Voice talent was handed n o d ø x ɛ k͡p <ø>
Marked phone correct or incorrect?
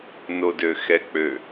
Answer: correct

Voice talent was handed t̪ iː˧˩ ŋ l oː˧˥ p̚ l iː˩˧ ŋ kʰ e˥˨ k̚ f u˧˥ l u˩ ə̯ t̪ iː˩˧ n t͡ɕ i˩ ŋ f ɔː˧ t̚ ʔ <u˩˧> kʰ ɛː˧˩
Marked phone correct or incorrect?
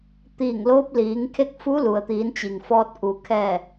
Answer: correct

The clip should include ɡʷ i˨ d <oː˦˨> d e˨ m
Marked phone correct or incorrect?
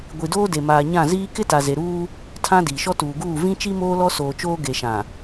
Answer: incorrect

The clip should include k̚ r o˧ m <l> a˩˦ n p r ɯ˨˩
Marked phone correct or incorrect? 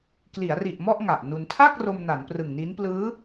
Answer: incorrect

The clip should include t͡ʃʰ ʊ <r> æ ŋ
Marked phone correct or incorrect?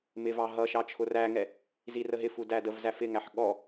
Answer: correct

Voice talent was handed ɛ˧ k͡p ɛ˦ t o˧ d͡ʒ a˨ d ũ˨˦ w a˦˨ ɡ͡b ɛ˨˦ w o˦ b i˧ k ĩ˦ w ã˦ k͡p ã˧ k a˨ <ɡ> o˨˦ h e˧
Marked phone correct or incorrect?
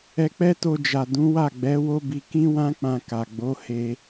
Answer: incorrect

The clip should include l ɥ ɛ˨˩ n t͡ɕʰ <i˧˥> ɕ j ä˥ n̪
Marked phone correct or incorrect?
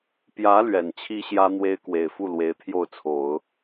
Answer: incorrect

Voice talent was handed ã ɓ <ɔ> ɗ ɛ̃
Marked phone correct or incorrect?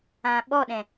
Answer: correct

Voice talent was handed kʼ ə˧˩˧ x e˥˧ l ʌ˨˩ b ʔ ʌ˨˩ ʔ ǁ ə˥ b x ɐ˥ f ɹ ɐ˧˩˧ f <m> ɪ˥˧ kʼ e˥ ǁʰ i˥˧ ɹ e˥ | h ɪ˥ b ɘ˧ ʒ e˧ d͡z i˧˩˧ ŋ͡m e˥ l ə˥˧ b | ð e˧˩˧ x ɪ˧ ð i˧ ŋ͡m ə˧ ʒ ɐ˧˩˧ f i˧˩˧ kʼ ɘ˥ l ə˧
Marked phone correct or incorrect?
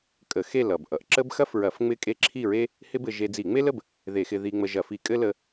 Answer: incorrect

